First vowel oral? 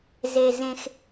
yes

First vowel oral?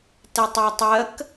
yes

